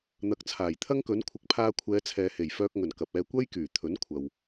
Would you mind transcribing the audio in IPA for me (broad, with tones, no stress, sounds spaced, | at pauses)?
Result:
n̪ ɐ˨˥ k̚ t͡sʰ aː˨˩ j t̪ʰ ɐ˥ ŋ k ɵ˨˥ n kʷʰ ɪ˨˥ k̚ pʰ aː˧ kʷʰ ɛː˨˧ t͡sʰ ɛː˨ h e˨˩ j f œː˧ k̚ ŋ ɵ˨˩ n k ɐ˨ p̚ ɛː˧ kʷ ɐ˥ j k yː˨˩ t̪ʰ ɵ˨˥ n kʷʰ ɐ˨ w